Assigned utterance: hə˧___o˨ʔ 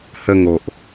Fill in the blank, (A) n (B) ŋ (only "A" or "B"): B